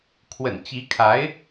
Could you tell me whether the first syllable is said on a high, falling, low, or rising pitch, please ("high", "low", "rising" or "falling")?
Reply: low